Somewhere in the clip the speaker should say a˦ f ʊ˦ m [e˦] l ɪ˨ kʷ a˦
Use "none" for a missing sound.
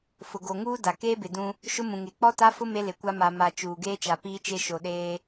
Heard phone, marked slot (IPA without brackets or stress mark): e˦